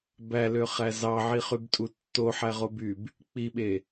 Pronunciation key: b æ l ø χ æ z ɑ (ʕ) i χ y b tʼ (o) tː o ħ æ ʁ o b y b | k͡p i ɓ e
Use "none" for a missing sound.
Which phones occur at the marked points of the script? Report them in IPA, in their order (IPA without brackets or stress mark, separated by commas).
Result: ʕ, u